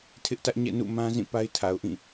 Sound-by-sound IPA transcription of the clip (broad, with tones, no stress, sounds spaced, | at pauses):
tʰ ɪ˦ ʔ t ä˦ ʔ ɲ ɛ̰˦˨ n ṵ˦˨ m ã˦ z ĩ˦˨ p a˦ ɪ̯ tʰ a˨ ʊ̯ ʔ ĩ˦˨